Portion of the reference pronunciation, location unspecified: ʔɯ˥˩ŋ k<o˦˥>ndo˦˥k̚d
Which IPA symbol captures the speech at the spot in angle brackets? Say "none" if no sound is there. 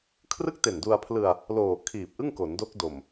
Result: o˩˦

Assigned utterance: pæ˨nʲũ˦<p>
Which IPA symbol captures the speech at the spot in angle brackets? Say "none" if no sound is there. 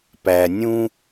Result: none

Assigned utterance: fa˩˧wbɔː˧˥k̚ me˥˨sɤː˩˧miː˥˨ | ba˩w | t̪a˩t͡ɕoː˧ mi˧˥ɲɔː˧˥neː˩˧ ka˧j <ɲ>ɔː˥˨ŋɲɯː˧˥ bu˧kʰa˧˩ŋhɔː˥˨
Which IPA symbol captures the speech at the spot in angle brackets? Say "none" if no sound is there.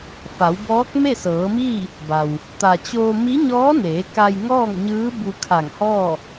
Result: ŋ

